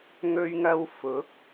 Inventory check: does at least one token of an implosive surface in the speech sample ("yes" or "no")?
no